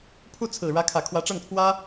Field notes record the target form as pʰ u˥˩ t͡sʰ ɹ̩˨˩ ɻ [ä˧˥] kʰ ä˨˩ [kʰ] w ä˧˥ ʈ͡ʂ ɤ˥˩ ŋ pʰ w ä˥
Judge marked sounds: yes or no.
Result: yes, yes

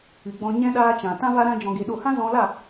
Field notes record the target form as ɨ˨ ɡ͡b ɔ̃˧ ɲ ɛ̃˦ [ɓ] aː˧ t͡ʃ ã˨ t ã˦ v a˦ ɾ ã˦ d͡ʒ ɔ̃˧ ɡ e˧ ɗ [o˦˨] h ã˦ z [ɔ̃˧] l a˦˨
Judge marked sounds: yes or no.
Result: no, yes, yes

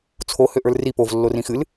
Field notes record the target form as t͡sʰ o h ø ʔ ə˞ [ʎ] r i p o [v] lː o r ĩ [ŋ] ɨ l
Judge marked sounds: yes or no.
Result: no, yes, no

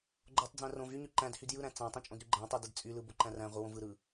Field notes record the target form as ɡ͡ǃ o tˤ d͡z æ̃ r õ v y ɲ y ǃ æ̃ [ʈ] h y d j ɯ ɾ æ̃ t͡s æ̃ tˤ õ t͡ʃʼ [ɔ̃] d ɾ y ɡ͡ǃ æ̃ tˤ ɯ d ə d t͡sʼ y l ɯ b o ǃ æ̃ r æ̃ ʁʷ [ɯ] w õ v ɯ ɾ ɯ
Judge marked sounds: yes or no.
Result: no, no, yes

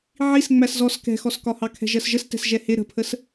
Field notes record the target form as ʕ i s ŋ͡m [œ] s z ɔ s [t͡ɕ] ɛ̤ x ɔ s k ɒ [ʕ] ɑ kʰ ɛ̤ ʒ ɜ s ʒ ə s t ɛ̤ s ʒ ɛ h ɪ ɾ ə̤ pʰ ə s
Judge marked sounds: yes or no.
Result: no, no, no

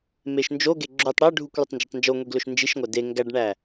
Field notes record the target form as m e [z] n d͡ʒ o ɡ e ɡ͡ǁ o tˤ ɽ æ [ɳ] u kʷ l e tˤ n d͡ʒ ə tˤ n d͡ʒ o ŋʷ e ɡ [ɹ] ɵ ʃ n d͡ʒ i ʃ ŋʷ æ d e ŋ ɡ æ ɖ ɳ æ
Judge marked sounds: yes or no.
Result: no, no, no

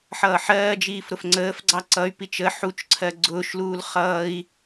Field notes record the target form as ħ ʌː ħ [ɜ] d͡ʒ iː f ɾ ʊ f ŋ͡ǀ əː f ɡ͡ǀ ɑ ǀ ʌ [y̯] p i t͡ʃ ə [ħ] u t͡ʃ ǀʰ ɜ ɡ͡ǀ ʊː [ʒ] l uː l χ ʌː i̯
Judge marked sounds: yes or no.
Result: no, yes, yes, no

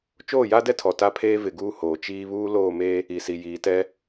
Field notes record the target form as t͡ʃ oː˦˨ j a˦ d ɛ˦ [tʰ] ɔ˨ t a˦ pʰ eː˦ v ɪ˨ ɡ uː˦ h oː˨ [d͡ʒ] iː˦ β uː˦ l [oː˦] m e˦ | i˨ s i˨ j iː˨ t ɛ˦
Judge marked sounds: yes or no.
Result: yes, no, no

